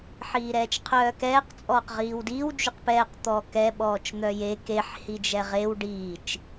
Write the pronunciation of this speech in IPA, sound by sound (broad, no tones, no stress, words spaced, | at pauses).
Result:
ħiːɾɛːt͡ʃqʰœːkɛːq t͡sʼɔːqʁiːwdiw d͡ʒyqpɛːq t̪ɔːkɛ ɓɔːt͡ʃn̪œje keħ hid͡ʒɛʁew ɖiːt͡ʃ